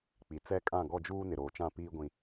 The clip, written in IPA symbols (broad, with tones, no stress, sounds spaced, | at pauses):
k͡p i˨ t͡s ɛ˦ kʼ ã˦˨ ɡ ɔ˦˨ d͡ʒ uː˦ n ɪ˨ ɾ oː˨ t͡ʃ ã˦˨ p iː˦ ɡʷ ĩ˦